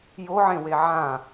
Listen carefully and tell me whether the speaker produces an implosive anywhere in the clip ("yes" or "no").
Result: no